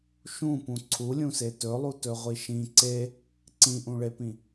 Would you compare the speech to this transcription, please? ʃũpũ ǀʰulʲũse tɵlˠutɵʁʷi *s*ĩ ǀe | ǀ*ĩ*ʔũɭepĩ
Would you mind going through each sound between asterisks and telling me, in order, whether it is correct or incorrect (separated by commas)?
incorrect, correct